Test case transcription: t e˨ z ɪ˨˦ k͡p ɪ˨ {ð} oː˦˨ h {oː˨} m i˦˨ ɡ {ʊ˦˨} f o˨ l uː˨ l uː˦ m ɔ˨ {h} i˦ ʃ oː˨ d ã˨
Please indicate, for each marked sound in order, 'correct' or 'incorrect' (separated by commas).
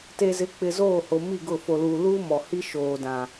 incorrect, incorrect, correct, correct